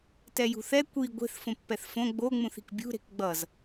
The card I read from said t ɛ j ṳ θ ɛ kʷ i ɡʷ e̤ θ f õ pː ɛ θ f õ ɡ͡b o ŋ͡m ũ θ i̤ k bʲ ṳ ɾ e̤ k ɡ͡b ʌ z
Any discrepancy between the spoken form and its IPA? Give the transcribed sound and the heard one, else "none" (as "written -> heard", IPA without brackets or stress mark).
none